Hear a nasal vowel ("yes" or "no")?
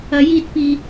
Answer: no